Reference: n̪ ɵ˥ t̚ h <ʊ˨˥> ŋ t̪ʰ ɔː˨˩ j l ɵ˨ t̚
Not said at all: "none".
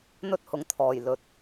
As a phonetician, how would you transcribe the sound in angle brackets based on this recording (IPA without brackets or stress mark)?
ʊ˨˥